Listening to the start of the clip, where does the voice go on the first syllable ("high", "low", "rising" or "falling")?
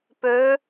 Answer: rising